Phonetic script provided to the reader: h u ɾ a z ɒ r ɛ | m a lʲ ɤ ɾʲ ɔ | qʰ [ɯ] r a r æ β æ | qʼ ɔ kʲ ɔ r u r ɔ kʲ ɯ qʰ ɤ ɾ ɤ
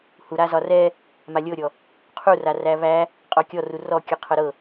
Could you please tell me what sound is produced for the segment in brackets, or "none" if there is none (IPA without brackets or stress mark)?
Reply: u